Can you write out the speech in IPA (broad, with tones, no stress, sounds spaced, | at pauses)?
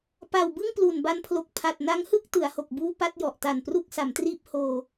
p a˨˩ w b ɯ˥˩ ŋ p l u˨˩ n b a˧ n pʰ l o˨˩ k̚ pʰ a˨˩ t̚ n a˦˥ ŋ h ɯ˥˩ k̚ t ɯ˩˦ a̯ h o˨˩ k̚ b uː˥˩ p a˥˩ t̚ j ɔ˨˩ ʔ t a˨˩ n p r u˥˩ k̚ s a˩˦ m t r iː˥˩ p̚ h oː˧